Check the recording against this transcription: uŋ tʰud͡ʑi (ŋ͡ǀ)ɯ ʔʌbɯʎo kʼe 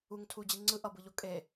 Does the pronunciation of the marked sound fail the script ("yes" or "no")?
no